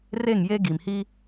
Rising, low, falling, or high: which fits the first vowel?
falling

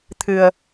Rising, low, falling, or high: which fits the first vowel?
low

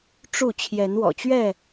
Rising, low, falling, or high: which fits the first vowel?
falling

